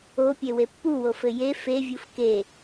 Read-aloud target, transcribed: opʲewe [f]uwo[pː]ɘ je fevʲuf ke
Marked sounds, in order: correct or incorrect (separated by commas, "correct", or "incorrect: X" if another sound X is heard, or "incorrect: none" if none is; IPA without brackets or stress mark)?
incorrect: pː, incorrect: f